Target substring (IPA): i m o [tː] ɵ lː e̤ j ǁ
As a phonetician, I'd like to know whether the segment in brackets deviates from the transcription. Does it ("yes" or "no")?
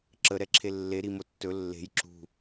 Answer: no